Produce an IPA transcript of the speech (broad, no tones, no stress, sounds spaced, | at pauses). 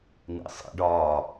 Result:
n ḭ sˤ ḭ ɖ ɒː